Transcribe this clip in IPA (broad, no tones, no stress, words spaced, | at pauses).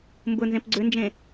mbʊnzẽp ɡ͡ǀʏnd͡ʒẽ